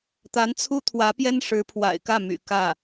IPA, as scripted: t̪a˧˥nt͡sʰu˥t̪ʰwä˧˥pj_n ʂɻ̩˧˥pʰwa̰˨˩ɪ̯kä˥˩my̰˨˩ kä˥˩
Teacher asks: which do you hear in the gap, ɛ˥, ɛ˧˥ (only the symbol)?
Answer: ɛ˥